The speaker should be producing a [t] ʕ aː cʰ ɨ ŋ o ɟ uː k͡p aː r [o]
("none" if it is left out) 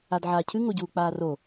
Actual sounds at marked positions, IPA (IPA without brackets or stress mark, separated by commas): d, o